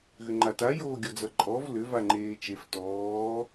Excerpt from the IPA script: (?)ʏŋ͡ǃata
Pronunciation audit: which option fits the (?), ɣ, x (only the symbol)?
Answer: ɣ